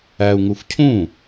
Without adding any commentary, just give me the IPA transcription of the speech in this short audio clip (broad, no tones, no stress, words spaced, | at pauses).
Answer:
æu̯ŋuf cʰũ